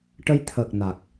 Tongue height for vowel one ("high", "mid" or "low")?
mid